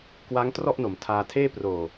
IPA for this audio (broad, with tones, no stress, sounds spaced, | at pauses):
k w a˦˥ ŋ t r ɔ˥˩ ʔ n o˩˦ m tʰ aː˧ tʰ eː˥˩ p r oː˨˩